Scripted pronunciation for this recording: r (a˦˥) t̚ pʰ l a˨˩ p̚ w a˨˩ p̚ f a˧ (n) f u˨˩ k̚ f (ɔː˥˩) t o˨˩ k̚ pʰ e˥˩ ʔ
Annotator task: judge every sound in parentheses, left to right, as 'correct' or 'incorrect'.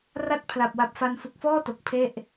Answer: incorrect: a˥˩, correct, correct

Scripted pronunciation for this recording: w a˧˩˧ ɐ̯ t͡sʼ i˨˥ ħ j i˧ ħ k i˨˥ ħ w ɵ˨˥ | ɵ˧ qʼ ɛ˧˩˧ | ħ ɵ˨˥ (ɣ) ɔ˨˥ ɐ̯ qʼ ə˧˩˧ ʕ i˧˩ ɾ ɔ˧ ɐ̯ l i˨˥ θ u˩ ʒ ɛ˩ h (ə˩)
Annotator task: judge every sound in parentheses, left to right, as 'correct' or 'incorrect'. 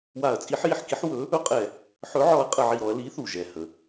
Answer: incorrect: ʕ, correct

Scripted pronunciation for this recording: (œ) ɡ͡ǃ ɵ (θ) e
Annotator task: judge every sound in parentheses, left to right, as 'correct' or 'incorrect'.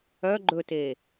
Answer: correct, incorrect: t

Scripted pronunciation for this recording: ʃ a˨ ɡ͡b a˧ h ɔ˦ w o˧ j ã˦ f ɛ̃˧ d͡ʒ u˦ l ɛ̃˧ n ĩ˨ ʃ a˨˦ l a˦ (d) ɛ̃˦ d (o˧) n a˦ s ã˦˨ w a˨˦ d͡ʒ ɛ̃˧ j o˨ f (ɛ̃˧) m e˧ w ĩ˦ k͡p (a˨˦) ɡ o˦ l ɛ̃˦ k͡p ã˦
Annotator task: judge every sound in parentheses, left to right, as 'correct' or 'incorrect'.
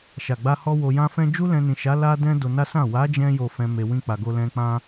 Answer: correct, correct, correct, incorrect: a˧

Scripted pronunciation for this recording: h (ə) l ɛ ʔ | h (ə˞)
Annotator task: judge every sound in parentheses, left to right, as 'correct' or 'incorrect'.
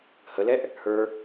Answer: correct, correct

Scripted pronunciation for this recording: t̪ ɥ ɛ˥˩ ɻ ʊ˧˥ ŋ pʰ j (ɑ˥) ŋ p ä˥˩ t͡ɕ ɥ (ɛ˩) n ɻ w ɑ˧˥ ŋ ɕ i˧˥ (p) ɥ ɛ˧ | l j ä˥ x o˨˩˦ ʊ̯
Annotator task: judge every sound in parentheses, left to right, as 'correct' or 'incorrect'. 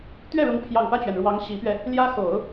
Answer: incorrect: ɑ˨˩, correct, correct

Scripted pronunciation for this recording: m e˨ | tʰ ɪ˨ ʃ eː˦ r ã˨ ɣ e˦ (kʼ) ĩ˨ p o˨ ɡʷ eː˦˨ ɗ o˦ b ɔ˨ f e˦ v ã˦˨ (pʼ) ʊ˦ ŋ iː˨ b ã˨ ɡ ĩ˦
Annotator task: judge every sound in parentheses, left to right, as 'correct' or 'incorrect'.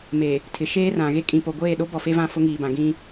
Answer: correct, incorrect: f

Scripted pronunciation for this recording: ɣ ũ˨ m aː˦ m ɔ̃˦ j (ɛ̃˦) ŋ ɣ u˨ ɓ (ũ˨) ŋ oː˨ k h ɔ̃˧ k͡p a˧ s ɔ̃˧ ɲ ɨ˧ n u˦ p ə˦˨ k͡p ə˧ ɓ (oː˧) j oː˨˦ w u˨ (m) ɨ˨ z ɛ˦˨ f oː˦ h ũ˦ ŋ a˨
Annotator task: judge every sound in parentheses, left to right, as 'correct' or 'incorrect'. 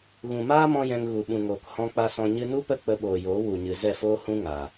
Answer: incorrect: ɛ̃˧, correct, incorrect: oː˨, incorrect: ɲ

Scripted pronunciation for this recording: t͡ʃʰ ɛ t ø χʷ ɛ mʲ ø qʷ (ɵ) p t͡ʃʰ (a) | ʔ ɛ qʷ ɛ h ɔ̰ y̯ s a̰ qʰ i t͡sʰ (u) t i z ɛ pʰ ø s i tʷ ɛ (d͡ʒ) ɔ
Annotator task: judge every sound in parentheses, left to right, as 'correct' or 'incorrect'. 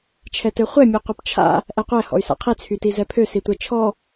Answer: incorrect: œ, incorrect: a̰, incorrect: y, incorrect: t͡ʃʰ

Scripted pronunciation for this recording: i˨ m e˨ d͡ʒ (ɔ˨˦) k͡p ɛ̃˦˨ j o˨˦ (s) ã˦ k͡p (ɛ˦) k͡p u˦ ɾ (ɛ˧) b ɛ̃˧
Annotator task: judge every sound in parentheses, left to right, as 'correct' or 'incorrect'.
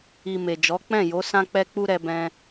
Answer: correct, correct, correct, correct

